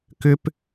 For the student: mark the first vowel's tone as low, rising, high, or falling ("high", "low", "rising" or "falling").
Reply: high